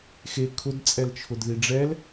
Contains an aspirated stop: yes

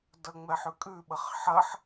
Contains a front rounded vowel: no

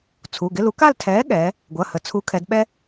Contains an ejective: no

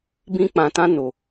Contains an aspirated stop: no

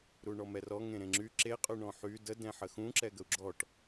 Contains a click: yes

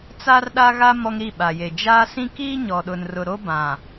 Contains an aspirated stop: no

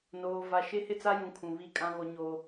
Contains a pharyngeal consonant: no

